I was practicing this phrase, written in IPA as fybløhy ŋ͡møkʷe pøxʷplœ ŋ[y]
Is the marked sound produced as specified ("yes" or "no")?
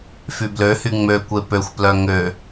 no